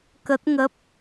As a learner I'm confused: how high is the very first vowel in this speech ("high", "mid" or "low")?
mid